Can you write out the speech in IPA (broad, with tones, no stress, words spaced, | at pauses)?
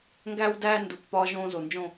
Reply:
ŋɡæ˦wdæː˦ ndu˨k pɒː˧ʒõː˧ zo˨nd͡ʒõ˦˨